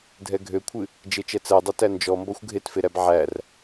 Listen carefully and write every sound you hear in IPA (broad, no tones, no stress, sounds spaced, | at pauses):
dʱ ɛ ɡʱ ø kʷʰ ɨ | d͡ʒ e t͡ʃ ɛ t͡s ɜ dˤ e t æ n d͡ʒ ɔ m b ɔ xʷ ɡʱ e t f e ɾ æ b ʕ æ r